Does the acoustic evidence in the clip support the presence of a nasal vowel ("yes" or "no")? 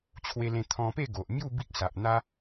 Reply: yes